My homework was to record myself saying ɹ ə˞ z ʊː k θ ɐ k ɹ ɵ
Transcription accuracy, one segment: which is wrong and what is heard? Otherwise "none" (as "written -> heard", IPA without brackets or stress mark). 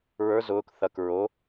ɵ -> o